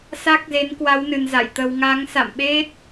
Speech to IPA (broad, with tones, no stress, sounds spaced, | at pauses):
s a˦˥ k̚ z e˨˦ n k w a˨˦ w n ɨ˨˩ n z a̰˧˨ j t̪ ə˧ w ŋ a˨˦ ŋ s a̰˧˨ m ɓ e˦˥ t̚